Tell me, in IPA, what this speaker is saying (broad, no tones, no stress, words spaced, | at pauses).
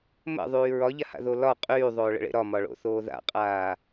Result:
mə̰ðˤyː ɹɒʎaha̰ðo lɒ qʼyːðˤoːɭə̰ɭḛ ɾɒmɒɭo̰θoː ða̰qʼaː